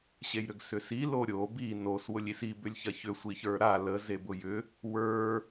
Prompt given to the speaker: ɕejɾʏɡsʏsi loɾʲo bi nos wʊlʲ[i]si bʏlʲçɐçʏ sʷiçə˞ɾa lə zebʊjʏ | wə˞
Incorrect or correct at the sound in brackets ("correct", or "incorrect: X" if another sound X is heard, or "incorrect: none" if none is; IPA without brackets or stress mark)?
correct